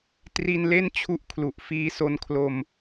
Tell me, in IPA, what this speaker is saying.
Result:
t r i˧ n l e˥˩ n t͡ɕʰ u˦˥ ʔ kʰ l u˨˩ ʔ f iː˧ s o˧ n kʰ l o˧ m

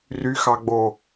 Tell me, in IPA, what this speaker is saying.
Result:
r y x ɑ ɡ͡b o

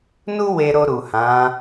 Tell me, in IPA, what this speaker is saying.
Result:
n u˦ w e˧ ɾ o˧ ɾ u˨ h ã˨˦

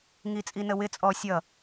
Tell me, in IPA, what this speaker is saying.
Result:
ŋ i t͡sʼ i n ə w ɪ t͡sʼ ɔ sʲ ʌ

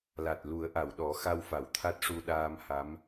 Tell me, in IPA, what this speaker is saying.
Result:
l a˨˩ t̚ l u˨˩˦ ə̯ ʔ a˨˩˨ w ɗ ɔ˨˩˦ x a˧ w f a˨˩˨ w t̪ʰ a˦˥ t̚ ʂ u˧ ɗ aː˧ m h a˧˥ m

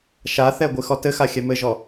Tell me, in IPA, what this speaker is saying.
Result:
ʃ a θ ɛ ɡʷ ɨ x ɔ t ɘ x a xʲ ɛ m ɘ ʒ ɔ

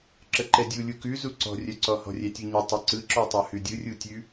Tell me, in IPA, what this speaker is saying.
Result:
ǁ ə ǃ ɛ dʲ u lʲ u k ʉ z u ǀ ɔ̤ rʲ œ ǀ ɔ h ɔ̤ rʲ ɛ tʲ u ɲ ɛ tˤ ɛ ǀ ɯ ǁ ɔ tˤ œ h ʉ dʲ ɯ rʲ u tʲ ʉ

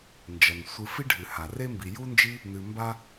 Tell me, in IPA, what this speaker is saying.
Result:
n d͡ʒ ɐ˩ n sʷ ɨ˨ f i˥ ɖʱ ɨ˩ h a˩ r e˥ m b i˨ j u˦ n d͡ʒ i˦ | n ɨ˨ m b a˥

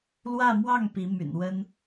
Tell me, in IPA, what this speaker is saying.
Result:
l w ä˥˧ m w ɑ˥˩ ŋ p i˧˥ m y̰˨˩ n w ə˥ n

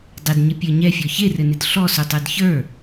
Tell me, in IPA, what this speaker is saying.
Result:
dˤ ɪ d ɲ ɪ pʲ ə˞ ɲ ɛ fʲ ɔ ç e r ɘ n ɪ d ɬ ɔ s u tˤ ə˞ d ç ə˞

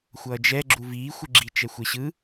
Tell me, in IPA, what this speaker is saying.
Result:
xʷ ʌː d͡ʒ ɛ ɡ͡ǁ u v iː xʷ ɯ ɡ͡ǁ i t͡ʃ ɛ xʷ e ɕ ɯ

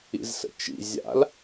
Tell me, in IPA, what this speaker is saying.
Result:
ḭ z s ə̰ t͡ʃ ḭ zʲ a̰ l

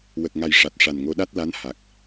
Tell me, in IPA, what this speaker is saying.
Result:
w ə˨˩ k̚ ŋ a˨˩ j ʂ a˨˩ t̚ ʂ a˨˩ n ŋ o˧˥ ɗ a˦˥ t̚ l a˧˥ n h a˨˩ k̚

